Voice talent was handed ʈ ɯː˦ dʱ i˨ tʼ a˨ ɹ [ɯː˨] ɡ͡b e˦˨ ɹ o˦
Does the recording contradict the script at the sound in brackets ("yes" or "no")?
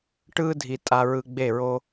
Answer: yes